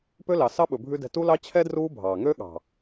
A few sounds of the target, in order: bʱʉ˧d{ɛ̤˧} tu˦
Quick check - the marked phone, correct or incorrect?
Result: correct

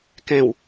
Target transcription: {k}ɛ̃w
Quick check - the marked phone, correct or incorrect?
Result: correct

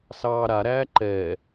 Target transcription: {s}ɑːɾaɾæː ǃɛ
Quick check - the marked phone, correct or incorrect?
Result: correct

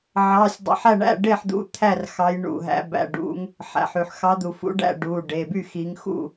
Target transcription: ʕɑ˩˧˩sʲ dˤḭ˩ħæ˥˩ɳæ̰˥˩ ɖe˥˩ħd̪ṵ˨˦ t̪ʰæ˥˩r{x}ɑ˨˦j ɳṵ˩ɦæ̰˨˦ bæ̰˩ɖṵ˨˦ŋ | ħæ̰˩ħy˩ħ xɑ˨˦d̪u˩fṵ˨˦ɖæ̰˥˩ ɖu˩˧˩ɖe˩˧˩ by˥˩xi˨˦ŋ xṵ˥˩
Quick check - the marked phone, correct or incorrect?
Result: correct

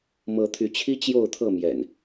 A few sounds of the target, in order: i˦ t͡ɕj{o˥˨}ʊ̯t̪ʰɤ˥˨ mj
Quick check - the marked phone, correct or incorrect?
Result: correct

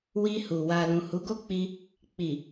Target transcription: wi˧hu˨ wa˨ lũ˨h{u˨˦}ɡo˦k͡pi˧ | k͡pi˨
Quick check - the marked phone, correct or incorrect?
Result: correct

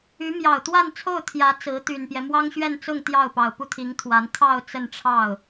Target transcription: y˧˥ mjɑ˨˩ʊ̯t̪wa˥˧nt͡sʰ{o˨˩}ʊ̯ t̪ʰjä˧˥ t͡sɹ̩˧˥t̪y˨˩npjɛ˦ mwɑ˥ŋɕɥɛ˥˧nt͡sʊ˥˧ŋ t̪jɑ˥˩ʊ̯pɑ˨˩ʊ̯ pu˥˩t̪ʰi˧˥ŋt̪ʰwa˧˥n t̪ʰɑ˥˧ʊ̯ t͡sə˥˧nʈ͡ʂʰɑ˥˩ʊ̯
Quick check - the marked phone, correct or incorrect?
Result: incorrect: o˥˩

